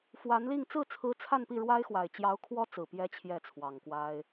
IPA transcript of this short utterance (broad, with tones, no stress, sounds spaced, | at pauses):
f w a˧˥ n l i˥˧ ŋ t͡s ɹ̩˥˩ t͡sʰ ɹ̩˧˥ t͡sʰ a˥˧ n p i˥˩ ɻ w a˥ ɪ̯ x w a˨˩ ɪ̯ t͡ɕ j ɑ˧˥ ʊ̯ kʰ w ɔ˥ t͡s ɹ̩˨˩ p j ɛ˧˥ t͡ɕʰ j ɛ˥˩ t͡sʰ w ɑ˨˩ ŋ k w a˥ ɪ̯